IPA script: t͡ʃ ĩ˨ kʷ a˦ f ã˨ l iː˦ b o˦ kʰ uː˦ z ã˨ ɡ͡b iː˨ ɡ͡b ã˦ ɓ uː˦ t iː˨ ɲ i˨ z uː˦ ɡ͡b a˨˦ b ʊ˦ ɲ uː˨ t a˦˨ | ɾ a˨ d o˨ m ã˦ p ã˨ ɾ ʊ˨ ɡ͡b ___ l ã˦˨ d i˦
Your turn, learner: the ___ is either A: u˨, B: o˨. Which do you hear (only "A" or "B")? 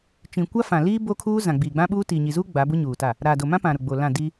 B